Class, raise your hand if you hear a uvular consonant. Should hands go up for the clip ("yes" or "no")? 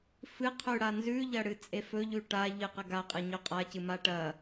yes